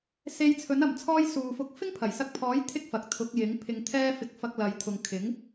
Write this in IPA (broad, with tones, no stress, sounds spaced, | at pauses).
s e˧ j t͡sʰ ɵ˨˥ n ɐ˨ m t͡sʰ ɔː˧ j s uː˨ f ʊ˧ k̚ f ɪ˥ ŋ pʰ ɐ˨˩ j s ɐ˧ k̚ pʰ ɔː˨˥ j t̪ʰ ɪ˥ k̚ f ɐ˨ k̚ t̪ʰ ʊ˨˥ k̚ j ɪ˨˥ ŋ pʰ ɪ˧ ŋ t̪ʰ ɛː˥ f ɪ˧ k̚ f ɐ˧ k̚ l ɐ˨˧ j t̪ʰ ʊ˨ ŋ kʰ ɪ˨˥ ŋ